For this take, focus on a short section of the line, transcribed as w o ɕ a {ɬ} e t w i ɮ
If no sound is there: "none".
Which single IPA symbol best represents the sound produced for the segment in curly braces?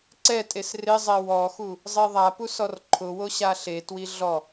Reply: ɬ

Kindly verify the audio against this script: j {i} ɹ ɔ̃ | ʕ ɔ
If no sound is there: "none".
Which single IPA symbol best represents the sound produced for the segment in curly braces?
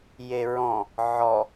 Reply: e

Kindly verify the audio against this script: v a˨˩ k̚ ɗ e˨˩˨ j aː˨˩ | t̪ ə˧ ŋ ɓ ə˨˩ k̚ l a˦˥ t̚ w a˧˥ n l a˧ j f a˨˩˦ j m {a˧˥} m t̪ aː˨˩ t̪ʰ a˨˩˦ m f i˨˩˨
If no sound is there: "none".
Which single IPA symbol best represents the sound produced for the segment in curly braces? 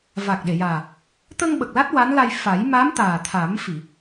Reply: a˧˥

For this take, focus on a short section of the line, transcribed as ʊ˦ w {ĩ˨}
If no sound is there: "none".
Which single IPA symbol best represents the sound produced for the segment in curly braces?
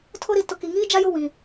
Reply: ĩ˨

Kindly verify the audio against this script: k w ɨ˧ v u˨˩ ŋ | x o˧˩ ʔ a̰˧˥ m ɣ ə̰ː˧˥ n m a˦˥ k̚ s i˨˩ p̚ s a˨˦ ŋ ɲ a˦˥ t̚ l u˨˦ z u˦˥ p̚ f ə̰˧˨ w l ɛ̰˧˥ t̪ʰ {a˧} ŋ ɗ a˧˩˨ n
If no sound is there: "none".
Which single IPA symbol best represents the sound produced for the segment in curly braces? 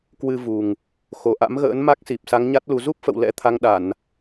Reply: a˧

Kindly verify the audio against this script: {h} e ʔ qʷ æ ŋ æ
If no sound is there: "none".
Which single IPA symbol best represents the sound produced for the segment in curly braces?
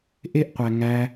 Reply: ʔ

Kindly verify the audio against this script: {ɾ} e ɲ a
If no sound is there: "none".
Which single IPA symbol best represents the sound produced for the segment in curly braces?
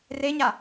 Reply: r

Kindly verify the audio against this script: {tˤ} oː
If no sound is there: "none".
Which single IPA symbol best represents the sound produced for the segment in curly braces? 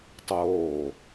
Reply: tˤ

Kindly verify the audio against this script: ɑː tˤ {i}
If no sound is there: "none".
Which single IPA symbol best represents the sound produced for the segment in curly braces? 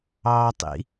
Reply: ḭ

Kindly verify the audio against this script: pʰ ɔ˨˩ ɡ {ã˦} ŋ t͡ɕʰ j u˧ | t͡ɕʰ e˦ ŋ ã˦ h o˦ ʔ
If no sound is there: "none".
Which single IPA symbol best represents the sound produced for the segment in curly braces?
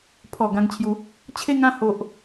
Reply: ã˧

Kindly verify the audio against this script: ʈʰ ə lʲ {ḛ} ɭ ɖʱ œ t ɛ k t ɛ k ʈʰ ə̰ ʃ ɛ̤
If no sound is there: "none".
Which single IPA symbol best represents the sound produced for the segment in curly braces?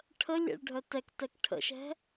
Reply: ḛ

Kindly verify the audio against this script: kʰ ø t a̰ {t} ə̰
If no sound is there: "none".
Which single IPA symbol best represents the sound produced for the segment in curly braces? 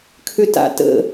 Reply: t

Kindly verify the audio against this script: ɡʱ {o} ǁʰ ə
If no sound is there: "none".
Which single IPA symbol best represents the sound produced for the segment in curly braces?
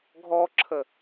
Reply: ɔ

